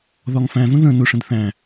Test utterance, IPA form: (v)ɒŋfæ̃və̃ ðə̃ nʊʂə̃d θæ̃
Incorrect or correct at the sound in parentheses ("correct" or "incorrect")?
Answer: incorrect